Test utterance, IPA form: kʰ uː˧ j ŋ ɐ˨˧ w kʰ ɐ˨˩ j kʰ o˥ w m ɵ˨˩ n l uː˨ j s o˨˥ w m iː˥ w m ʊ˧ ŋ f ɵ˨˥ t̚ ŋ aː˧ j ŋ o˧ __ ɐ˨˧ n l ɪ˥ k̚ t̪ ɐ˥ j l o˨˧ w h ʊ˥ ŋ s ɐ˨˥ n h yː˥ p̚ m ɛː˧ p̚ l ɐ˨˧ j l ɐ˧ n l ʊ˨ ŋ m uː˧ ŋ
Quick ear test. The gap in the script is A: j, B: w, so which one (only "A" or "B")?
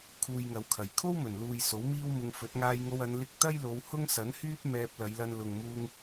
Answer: B